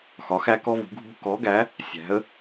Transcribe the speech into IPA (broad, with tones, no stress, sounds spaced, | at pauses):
x ɒ˨˥ x æ˥ k ɔ˥ v ṳ˨˥ ɡʱ ṳ˥ k ɔ˨˥ ɡ æ˨˥ | sʲ æ̤˨˥ ə̯